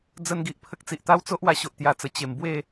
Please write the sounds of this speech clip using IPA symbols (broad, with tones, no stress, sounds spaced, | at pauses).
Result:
d͡z ə˦ n ɡ i˨ ʔ pʰ ə˦ k̚ t͡s i˨ ʔ t̪ a˦ w t͡s o˦ ʔ w a˧ ɕ o˨ ʔ t̪ j a˧ t͡s ə˨˩ t͡ɕ e˨˩ m b w e˥˧